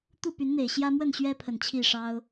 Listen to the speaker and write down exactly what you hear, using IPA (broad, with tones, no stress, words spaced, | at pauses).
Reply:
t̪u˥˨py˨˦nn̪e˨˩ɪ̯ ɕjä˦mwə˥˨nɕɥɛ˦pʰə˨˩n t͡ɕʰi˥˨ʂɑ˦ʊ̯